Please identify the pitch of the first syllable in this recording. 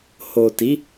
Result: low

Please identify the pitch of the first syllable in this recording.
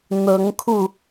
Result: rising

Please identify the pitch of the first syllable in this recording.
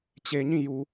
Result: low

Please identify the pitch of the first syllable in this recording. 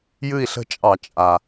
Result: falling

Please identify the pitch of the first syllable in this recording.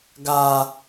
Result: low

